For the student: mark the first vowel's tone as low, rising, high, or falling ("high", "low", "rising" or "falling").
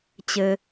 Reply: low